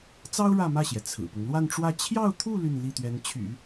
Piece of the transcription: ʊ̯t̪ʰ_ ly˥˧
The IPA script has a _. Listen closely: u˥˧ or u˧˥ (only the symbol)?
u˥˧